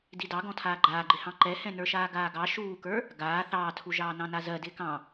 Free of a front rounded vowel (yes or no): yes